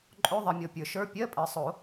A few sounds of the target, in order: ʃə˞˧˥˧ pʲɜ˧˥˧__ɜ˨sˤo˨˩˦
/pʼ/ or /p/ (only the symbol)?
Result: pʼ